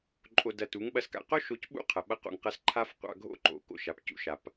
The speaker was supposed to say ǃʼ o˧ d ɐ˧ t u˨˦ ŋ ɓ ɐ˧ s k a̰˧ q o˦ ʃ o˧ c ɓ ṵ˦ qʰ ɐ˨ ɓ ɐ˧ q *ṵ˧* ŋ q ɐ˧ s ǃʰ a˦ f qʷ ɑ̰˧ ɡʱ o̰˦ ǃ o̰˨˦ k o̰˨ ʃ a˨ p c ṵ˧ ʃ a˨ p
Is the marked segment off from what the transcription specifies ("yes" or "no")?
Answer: yes